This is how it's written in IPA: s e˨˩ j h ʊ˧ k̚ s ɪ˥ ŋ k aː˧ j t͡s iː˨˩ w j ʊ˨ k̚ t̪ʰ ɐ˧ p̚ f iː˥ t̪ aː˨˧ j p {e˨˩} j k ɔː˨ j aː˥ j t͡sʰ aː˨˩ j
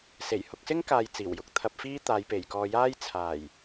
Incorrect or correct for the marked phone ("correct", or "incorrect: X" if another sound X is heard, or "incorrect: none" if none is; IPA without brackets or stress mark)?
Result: correct